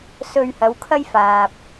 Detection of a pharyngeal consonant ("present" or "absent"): absent